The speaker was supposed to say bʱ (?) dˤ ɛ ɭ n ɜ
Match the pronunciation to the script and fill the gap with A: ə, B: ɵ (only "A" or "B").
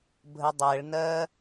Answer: A